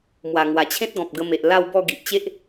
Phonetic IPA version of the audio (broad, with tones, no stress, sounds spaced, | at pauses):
m w a˨˩ ŋ w a˨˩ t͡ɕʰ ẽ˦ t̚ ɡ ɔ̃˨ p̚ ɡ ə˧ m e˨ ʔ l a˥˧ w b ɔ˥˧ ɡ i˨ ʔ t͡ɕ e˦ ʔ